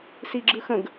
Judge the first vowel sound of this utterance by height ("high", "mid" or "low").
high